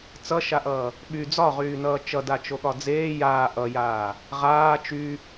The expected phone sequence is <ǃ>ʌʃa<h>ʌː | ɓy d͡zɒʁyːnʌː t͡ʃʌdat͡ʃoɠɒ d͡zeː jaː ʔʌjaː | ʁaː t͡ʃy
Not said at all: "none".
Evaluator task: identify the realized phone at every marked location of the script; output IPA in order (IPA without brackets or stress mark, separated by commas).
t͡s, ʔ